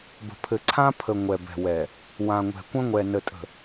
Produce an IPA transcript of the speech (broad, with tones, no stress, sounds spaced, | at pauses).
b ə̤˨ pʰ ɘ˨ ǀʰ ã˦ pʰ ə˨ ŋʷ ɛ˨ b ɛ̤˨ w ɛ˨ | w ã˨ ŋʷ ɛ̤˨ kʷ ə̃˦ ŋʷ ɛ˨ n ə˨ tʼ ə̤˨